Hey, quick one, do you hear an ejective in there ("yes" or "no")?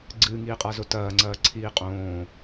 yes